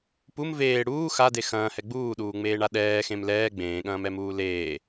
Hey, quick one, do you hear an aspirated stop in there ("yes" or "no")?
no